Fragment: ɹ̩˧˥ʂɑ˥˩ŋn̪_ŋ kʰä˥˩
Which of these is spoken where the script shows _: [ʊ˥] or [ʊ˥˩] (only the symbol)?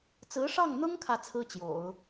ʊ˥